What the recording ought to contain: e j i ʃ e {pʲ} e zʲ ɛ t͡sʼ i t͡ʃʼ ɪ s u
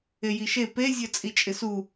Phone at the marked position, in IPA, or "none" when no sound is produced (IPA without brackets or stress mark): p